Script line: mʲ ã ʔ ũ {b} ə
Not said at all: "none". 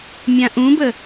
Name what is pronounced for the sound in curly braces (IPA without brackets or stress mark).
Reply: b